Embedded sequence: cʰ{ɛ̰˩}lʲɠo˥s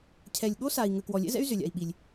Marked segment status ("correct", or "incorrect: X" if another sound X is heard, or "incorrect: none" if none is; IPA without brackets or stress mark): incorrect: ɛ˩